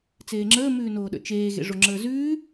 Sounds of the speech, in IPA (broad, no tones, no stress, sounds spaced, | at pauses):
t͡s eː ŋ͡ǁ əː m ʉː n oː ɗ ə̰ t͡ʃ eː ɣ ḛ ʐ o ŋ͡ǁ əː z ʉː